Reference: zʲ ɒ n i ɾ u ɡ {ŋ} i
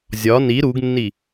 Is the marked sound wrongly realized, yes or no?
yes